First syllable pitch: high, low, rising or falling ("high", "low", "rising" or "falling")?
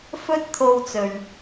high